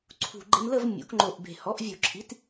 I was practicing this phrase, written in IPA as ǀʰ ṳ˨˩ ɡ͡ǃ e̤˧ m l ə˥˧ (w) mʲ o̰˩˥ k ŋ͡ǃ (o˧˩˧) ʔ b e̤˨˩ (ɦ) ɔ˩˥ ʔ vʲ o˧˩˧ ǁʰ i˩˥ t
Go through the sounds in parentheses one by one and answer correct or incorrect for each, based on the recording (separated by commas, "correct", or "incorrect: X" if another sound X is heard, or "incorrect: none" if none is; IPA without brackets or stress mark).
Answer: incorrect: v, incorrect: o˨˩, incorrect: h